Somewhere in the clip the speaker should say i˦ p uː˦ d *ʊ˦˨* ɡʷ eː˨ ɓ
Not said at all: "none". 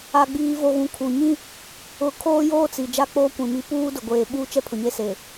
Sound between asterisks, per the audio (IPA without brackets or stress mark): ʊ˨